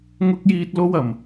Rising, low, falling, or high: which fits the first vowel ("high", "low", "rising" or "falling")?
high